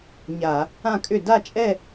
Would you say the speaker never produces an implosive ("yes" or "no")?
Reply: yes